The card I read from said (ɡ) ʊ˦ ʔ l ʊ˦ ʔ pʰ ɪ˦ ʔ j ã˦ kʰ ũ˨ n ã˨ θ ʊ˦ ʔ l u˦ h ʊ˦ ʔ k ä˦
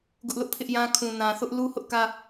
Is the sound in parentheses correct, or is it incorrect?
correct